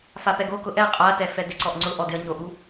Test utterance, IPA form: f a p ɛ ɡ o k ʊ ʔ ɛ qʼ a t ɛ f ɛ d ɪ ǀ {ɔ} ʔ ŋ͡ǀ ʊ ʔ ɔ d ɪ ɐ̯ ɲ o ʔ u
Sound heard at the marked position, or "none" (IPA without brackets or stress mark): ɔ